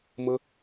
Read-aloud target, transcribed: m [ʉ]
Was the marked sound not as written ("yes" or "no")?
yes